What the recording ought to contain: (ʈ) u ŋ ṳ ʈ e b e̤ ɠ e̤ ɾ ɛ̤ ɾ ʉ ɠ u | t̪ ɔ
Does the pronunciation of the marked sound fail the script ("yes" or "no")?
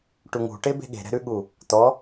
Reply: no